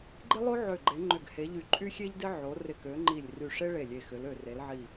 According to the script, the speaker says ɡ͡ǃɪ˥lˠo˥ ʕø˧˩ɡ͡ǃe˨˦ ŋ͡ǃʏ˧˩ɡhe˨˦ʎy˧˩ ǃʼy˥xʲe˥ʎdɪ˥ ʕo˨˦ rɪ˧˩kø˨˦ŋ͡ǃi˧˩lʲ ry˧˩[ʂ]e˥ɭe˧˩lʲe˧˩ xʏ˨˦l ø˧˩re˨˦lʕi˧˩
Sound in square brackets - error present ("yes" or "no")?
no